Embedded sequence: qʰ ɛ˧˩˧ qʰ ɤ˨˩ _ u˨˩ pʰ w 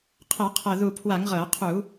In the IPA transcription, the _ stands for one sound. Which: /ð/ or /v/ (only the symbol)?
ð